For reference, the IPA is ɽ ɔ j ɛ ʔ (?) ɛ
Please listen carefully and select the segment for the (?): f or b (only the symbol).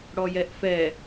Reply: f